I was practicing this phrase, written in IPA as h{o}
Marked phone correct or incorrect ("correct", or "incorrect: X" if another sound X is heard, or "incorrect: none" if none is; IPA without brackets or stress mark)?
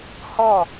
incorrect: ɔ